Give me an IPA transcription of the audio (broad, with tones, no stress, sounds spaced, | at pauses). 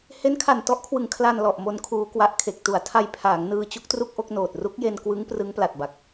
h e˦˥ n kʰ a˨˩ n t ɔ˦˥ ʔ kʰ w ɯ˩˦ ŋ kʰ l a˧ n l ɔ˨˩ ʔ m o˧ n kʰ uː˧ k w a˦˥ ʔ kʰ e˨˩ k̚ t u˩˦ a̯ tʰ a˧ j pʰ aː˩˦ ŋ n ɯː˧ t͡ɕ u˦˥ k̚ t r u˥˩ k̚ ʔ o˥˩ k̚ n oː˨˩ t̚ r u˦˥ k̚ j e˧ n k w ɯ˦˥ ŋ p r ɯ˦˥ ŋ p l a˨˩ t̚ b a˨˩ k̚